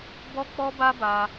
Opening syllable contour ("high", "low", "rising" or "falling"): high